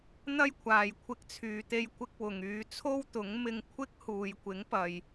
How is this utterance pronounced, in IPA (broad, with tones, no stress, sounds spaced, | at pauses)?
n̪ ɐ˥ j kʷʰ aː˨ j kʷʰ ɪ˧ k̚ t͡sʰ yː˨ t̪ e˧ j kʷ ɪ˥ k̚ w ʊ˨ ŋ yː˨˧ t͡sʰ o˥ w t̪ ʊ˨˥ ŋ m ɪ˧ ŋ kʷʰ ɪ˥ k̚ h uː˨ j kʷ ɪ˨˥ ŋ p ɐ˨ j